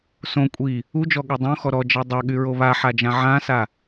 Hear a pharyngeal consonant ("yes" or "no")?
yes